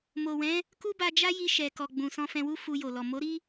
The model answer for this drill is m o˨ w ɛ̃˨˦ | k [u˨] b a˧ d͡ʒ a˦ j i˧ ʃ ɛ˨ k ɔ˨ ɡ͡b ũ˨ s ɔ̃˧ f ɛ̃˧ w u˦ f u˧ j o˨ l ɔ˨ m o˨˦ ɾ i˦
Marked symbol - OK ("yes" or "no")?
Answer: no